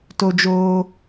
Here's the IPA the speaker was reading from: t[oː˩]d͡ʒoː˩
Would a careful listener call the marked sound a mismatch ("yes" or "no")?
yes